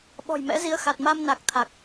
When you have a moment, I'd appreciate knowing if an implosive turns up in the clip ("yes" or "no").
yes